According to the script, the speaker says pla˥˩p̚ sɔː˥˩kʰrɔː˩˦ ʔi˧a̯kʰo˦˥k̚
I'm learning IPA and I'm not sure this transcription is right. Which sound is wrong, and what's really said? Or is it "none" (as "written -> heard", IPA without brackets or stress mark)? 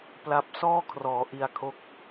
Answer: none